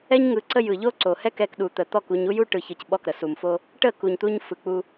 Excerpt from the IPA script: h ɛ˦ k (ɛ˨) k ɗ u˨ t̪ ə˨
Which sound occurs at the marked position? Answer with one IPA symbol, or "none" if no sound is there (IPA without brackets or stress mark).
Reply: ɛ˧